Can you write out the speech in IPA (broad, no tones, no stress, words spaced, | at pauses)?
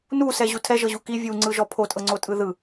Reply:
nusɛʑu tʰɛʒɤʑu ki vʲuŋ͡ǀɯʒɔ pʰotʼɤŋ͡ǀotʼɯ ðɯ